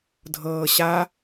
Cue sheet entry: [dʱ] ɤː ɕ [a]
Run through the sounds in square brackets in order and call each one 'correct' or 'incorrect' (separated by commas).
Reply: correct, correct